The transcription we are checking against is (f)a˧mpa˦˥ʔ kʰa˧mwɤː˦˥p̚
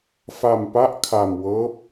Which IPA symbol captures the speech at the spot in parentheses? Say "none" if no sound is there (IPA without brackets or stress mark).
f